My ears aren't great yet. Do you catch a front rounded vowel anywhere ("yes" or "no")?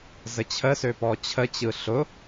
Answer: yes